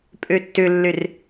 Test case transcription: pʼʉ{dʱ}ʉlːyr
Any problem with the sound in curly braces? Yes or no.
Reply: yes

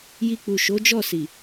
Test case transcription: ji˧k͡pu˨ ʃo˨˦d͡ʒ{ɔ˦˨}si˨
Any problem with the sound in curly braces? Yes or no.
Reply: no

